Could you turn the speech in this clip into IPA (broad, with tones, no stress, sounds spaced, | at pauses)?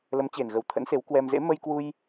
l ə˨˦ m t͡ɕ e˨˩ n ɣ ə˨˩ w t̪ʰ ə̰˧˥ n s e˨˦ w k w ɛ˧ m z ḛ˧˥ m ə˧ j k w u˧ j